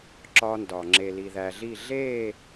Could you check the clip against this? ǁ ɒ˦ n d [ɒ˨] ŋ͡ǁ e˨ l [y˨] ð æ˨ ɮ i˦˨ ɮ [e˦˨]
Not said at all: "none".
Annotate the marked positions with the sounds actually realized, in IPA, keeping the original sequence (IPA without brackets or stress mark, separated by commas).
ɒ˨, i˨, e˦˨